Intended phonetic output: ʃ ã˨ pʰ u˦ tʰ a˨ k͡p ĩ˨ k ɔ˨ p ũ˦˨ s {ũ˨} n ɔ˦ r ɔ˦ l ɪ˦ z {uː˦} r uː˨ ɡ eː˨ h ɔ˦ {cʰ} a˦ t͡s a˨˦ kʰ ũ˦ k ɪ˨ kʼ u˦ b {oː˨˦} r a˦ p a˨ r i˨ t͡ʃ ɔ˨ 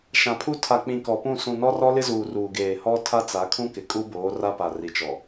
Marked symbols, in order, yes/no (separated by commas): yes, no, no, yes